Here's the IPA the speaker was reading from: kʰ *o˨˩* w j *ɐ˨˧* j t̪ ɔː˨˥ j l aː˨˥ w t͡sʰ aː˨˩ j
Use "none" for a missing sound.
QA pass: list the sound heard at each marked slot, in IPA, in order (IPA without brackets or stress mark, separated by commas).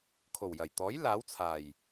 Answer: o˨˩, ɐ˨˩